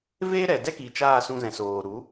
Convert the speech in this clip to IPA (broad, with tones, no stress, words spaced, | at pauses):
veː˦ɾɛ˨ dɛ˦ki˨ t͡ʃaː˦˨sũ˧zɛ̃˨ soː˨ɾu˨˦